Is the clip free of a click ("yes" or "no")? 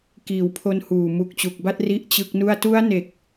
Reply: yes